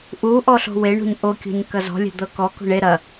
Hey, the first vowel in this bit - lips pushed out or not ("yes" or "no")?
yes